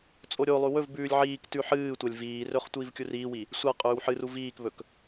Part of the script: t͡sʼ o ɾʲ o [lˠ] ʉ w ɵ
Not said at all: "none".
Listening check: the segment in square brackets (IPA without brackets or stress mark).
lˠ